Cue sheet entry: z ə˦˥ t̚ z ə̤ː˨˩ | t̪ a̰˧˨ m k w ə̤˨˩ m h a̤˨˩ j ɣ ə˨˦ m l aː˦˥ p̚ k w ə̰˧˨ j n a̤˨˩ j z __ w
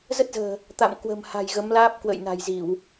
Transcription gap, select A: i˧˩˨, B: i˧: A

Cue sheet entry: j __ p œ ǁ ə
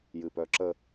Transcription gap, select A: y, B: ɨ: B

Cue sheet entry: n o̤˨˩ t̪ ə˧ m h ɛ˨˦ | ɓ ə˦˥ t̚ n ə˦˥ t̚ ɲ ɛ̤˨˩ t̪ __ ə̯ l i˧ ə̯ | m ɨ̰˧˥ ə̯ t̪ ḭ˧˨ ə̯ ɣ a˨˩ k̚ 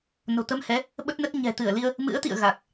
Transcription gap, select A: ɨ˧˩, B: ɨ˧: A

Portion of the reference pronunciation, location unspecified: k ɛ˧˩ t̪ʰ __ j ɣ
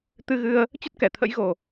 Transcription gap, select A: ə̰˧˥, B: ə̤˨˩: A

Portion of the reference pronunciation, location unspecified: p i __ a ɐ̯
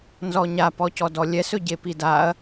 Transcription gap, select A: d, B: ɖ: A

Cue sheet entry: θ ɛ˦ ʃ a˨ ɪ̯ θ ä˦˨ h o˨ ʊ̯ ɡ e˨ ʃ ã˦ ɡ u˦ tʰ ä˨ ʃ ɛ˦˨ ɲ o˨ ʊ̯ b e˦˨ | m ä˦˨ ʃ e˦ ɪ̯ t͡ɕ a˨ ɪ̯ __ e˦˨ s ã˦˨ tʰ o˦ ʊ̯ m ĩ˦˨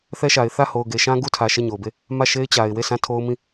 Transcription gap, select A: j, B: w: B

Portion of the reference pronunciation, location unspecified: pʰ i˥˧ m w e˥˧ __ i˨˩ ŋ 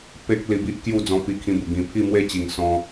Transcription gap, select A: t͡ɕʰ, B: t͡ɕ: B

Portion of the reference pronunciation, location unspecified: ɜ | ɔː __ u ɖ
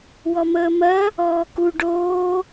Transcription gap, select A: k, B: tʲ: A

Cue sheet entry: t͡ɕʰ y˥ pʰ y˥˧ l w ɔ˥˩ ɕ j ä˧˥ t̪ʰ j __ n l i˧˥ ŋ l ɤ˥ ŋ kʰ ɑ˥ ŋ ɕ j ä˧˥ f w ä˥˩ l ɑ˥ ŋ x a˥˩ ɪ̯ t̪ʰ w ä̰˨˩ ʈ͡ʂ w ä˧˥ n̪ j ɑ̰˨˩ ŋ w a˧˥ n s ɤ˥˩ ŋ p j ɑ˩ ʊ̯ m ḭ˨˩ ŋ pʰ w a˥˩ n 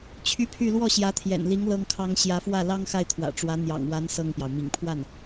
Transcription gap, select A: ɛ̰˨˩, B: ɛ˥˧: A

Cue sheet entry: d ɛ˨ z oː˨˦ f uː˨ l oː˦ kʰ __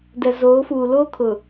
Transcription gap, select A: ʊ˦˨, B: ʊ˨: B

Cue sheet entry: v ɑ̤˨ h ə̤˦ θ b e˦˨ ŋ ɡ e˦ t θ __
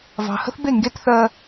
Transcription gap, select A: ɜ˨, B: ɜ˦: B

